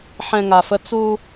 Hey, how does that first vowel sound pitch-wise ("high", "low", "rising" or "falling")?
low